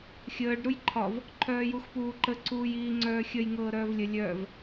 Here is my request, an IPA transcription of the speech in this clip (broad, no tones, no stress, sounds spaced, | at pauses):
xʲ əː ɖ ɾ u j ǃʰ ɒ v | ǃʰ œː j u x p uː ǃ ə ǀ uː j iː ŋ͡ǀ œː xʲ ə j ŋ ɤː ɾ œː v lʲ ə lʲ œː v